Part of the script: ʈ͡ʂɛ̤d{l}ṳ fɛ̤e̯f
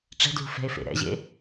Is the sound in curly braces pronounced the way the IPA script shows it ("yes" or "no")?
yes